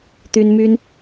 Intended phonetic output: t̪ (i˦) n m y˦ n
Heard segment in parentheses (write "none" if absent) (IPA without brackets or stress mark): y˦